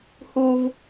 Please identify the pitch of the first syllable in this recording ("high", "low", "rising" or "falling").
high